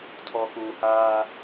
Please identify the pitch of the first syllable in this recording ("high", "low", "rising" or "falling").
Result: low